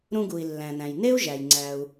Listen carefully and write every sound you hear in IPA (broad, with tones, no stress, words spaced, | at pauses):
ɾũ˧ɡu˩i̯ lːæ̃˩næ̃˩j ne˥u̯ʒæ˩j ŋ͡ǀæ˩u̯